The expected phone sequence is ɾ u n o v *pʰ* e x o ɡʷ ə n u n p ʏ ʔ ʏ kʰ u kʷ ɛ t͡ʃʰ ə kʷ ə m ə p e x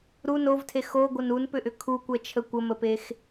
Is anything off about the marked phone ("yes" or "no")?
yes